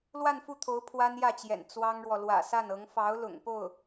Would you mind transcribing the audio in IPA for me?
l w a˥˧ n f u˥˩ t̪ʰ o˧˥ ʊ̯ pʰ w a˥ n j ä˥˩ t͡ɕ j ɛ̰˨˩ n t͡s w ɑ˥ ŋ ɻ w ɔ˨ l w ä̰˨˩ s a˥˩ n ɤ˧˥ ŋ f ɑ˧˥ ʊ̯ l ʊ̰˨˩ ŋ p o˥˩ ʊ̯

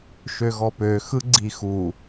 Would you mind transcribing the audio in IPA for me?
ʃ ø ɣ ɔ p ø x ɯ ɡ͡ǀ i x u

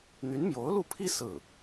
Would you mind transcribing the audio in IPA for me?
n̪ y˧˥ n m j o˧˥ ʊ̯ l u˥˩ pʰ i˥ s ɹ̩˥˩

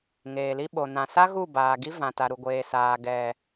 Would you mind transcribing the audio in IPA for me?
ŋ eː˨ l i˦ ɓ o˨ n ã˨ s a˦ ɣ u˦˨ b aː˨ ɡ i˦ v ã˨ t a˨ ɾ u˨ ɡʷ eː˨ s aː˨ ɡ ɛ˨

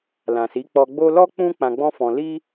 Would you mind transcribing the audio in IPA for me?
l ã˨ s i˨˦ k͡p ɔ˧ ɡ͡b o˦ l ɔ˦ k͡p ũ˦ k͡p ã˧ ɡ͡b ɔ̃˦ f ɔ̃˧ l i˦

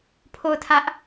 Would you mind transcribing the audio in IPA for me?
pʰ o˦˨ ʊ̯ tʰ ä˦ ʔ

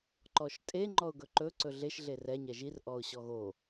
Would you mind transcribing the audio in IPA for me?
ǃ ɔ ʃ tʼ e ŋ͡ǃ ɔ ʊ̯ ɡ ɵ ǃ ɵ ǀ ɵ ɮ e ʃ ɮ e r ɛ ɲ ɛ ʒ i r ʔ ɔ ʊ̯ ɕ ɔ ɣ o

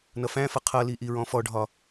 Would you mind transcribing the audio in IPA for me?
n ʌ f æ̃ f ʌ qʰ ʌ l i ʔ i ɹ ɔ̃ f ɔ ɖʱ ɒ

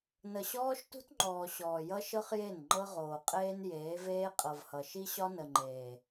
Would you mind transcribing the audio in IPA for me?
n ə˨ ɕ ɔː˦ ʃ t ṳ˦ t ŋ͡ǃ ɔː˨ ɕ ɔː˨ j ʌ˦ ʃ ɤ˦ χ j e˦˨ n ŋ͡ǃ ɤ˦ ʁ oː˨ qʼ eː˦ n j eː˨˦ v eː˦ qʼ ɤ˨ v h ʌ˨ ʃ i˦ ɕ ɒ˦ n ə˨ ŋ͡ǃ eː˨

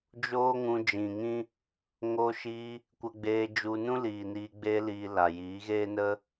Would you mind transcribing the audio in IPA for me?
d͡ʒ oː˦ ŋ ũ˧ d͡ʒ ĩ˨ ŋ ĩ˦ | ŋ oː˧ ʃ iː˧ | kʷ ə˧ ɡ͡b eː˧ d͡ʒ u˧ n ũ˦ l iː˨ n iː˧ ɡ͡b eː˦ l iː˧ l a˨ j iː˨˦ ɣ eː˦ n ə˦

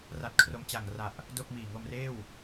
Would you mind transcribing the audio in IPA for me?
r a˦˥ t̚ kʰ r o˦˥ m t͡ɕ a˨˩ ŋ r a˨˩ ʔ | d o˥˩ k̚ m iː˨˩ ŋ o˧ m r eː˥˩ w

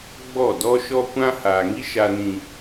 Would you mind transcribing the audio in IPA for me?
ɡ͡b ɔ˦˨ d ɔ˦ ʃ ɔ˦ kʷ ã˦ h aː˨ ŋ i˦ ʃ a˦ n ĩ˦

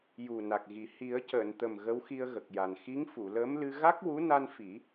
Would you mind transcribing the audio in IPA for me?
j u˨˩ n a˨˩ k̚ ɣ i˨˩ h i˨˩˦ ə̯ c əː˨˩˨ n t̪ ə˨˩ m ɣ ə˧˥ w x i˧ ə̯ ɣ ə˨˩ k̚ j a˨˩ n x i˧˥ ŋ f u˨˩˨ l əː˧˥ m l ɨ˧ ɣ a˦˥ k̚ w u˧˥ n a˧ n f i˨˩˦

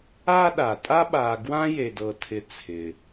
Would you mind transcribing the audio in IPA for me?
a˥ ɗ a˩ tʼ a˦ ɓ a˨ ɡ w ã˦ j e˨ d ɤ˨ tʰ ɪ˨ t͡sʰ ɪ˩

